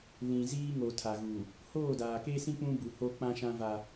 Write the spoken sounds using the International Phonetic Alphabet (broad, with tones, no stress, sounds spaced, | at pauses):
l ĩ˨ z iː˦ ŋ o˨ tʰ a˨ ɣ u˨ | h oː˦˨ d aː˨ k e˦ s ĩ˦ k͡p ũ˦ b u˨ h o˦ k͡p ã˦ ʃ ã˦ v a˦